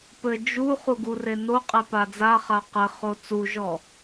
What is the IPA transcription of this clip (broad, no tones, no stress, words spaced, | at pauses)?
pɘ d͡ʒu χuɡure noqʼe pad͡zaχa qɘ χot͡suʒɔ